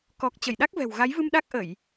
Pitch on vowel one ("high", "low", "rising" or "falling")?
low